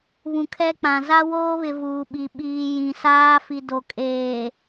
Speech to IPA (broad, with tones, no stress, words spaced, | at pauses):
βũ˨kʰɛ˦k͡pã˨ za˦woː˦βɪ˨ vuː˨ɓi˨ ɓiː˨ jĩ˨saː˦ fi˨do˨kʼeː˨